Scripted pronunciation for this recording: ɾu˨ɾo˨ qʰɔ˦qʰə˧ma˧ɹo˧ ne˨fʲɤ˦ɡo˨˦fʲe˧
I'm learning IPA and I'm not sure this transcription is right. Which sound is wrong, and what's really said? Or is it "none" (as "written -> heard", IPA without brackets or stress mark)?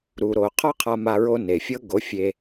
ə˧ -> a˧